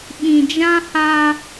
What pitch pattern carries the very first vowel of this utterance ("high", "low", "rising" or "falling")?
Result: low